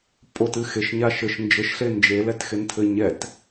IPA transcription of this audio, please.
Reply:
pʼ o t ɨ x e ʃ ɲ a ʃ ɘ ʃ n d͡ʒ ɘ ʃ ɬ e n d͡ʒ e l ɛ t x e n tʰ ɘ ɲ ɛ t

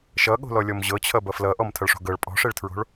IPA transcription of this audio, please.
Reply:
ʃ ʌ ɠ o̤ l ɔ lʲ ɔ m ʑ ɤ t͡ɕʰ ʌ b ʌ f l ʌ ʔ ɔ m tʰ ʌ ɭ ʂ o̤ ɡ ɤ ɭ pʼ ɔ̤ ʂ e ɭ tʰ ɹ o̤ ɭ

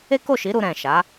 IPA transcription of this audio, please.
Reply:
e˦ k o˦˨ ʃ i˨˦ ɾ u˧ ɾ ɛ̃˨ ʃ a˨˦

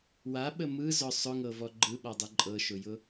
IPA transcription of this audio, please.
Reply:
w a ɓ ə m ɯ z ɔ sˤ ʊ ŋ ɤ v ɔ ɡ͡ǃ ɯ ɓ ɔ dˤ ɯ ǃʼ ɤ ʃ ʊ j ʊ

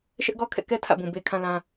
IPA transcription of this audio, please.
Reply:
ʃ ɛ˦ ʔ ɡ ɔ˦ kʰ ɛ̰˦˨ k ɛ˦ tʰ ä̰˦˨ b ũ˨ b e˦ kʰ ã˦ l ã˦

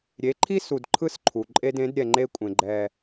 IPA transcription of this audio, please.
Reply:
ɾʲ e˨˦ ǃʰ i˦ s u˨ d ǃʰ ɯ˦ s ǃʰ u˨ ǃʼ e˦ d ẽ˨˦ d ɾʲ ɛ˨ ŋ͡ǃ e˦ kʷʼ ẽ˨ ɡ͡ǃ ɛ˦

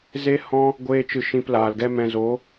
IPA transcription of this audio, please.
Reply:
z e˦ h ɔ̃˦ | ɡʷ eː˧ t͡ʃ ɨ˨ ʃ ĩ˧ p l aː˨ l ɡ ɛ˦ m ɛ̃˧ z o˨˦

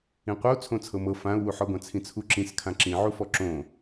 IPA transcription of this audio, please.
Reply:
ĩ qʷ ʌ u̯ t͡sʰ õ t͡sʰ ɤ m ɤ f ã u̯ w u ħ ɔ ɡʷ ã t͡sʰ ĩ t͡sʰ u ǁ ĩ s kʰ ã ǁ ĩ ʕ u f ɔ ǁ õ

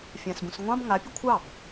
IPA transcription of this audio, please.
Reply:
fʲ ã s b ũ s ŋʷ ɑ̃ b ŋ a pʲ ə kʷʰ ɑ b

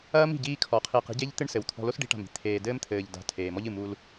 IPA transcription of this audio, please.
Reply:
ɐː˦ m i̤˨ ɟ iː˦ kʰ ɔ˨ qʰ iː˨ q i̤˦ ɟ e˦ ʎ t̪ ɨ˦ ɳ s ɘ˨ w t̪ʰ ɔ̤˨ l o˦ s ɖ i̤˦ ʈ a̤˨ m i̤˦ t̪ʰ eː˨ d ɘː˦ m t̪ʰ ɘː˨ ʎ d a̤˨ tʰ eː˨ m ɔ˦ ʎ ɨ˨ m u˦ l

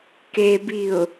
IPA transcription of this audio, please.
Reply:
k e b i ʊ̯

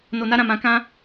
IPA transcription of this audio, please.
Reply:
n o˧ n a˦ ɾ ã˦˨ m ã˧ k ã˦

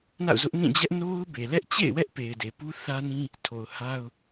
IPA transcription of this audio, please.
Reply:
n a̰˦˨ ʊ̯ z ʊ˦ ʔ n ĩ˦˨ d͡ʑ ɛ˦ ʔ n o˦ ʊ̯ b e˨ l ɛ˦ ʔ t͡ɕ ḛ˦˨ ɪ̯ w ɛ˦ ʔ p e˨ ɪ̯ d e˨ p u˦ θ ä˦ n ĩ˦ | tʰ o˨ ʊ̯ h a˦ ʊ̯

